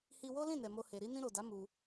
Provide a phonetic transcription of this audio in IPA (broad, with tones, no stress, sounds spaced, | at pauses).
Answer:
h i˧ w o˦ l ĩ˦˨ n ɛ˨ m o˧ h e˨ ɾ i˧ n ĩ˧ ɾ o˨ d a˨˦ m u˧